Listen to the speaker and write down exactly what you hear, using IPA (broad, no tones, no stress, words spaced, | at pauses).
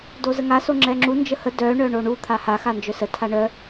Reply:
dozəŋa soŋ͡ǁɛŋ͡ǁu nd͡ʒəhə dœ ɳœɳoɳu t̪ʰaha xand͡ʒœsə tʰaɳœ